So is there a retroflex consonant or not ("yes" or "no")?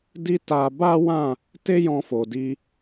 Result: no